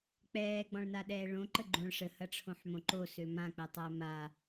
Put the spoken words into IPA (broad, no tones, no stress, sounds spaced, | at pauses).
k͡p ɛː ɡ͡b ɔ̃ ɭ n a ɗ ɛː ɭ õ ǃ ə ɡ͡ǃ õ ɭ ʂ ə h ɐ ʈ͡ʂʰ õ ħ m õ ǃ o s ø m ã k͡p ɛ tˤ ɛː m a